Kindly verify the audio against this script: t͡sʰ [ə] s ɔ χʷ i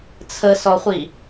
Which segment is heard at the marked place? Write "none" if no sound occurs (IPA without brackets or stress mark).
ə